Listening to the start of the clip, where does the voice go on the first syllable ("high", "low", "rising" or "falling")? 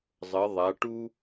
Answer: rising